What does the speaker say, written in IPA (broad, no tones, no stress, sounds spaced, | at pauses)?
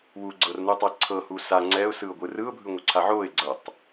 w u ɡ͡ǀ ɤ r n u tˤ ɛ ǀʰ ɤ h u s a ŋ͡ǀ ɛ ʊ̯ s ɯ ʊ̯ ɡʷ ɯ r ɯ ʊ̯ bʱ ɯ ŋʷ ɛ ǀʰ a ʕ o ɪ̯ ɡ͡ǀ ɤ tˤ